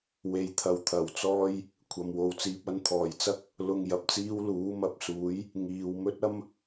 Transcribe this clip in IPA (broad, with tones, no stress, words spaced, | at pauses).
we˨jt̪ʰɐ˨w t̪ʰɐ˨˩wt͡sɔː˧j | kʷʰɐ˨mwo˨wt͡siː˧p̚ɐ˥n t̪ʰɔː˨˩jt͡sɐ˥k̚ | lʊ˧ŋ jɐ˨p̚t͡siː˥wluː˨˥ mɐ˨˥p̚suː˨˥j | ŋiː˨wmɵ˥t̚ɐ˥m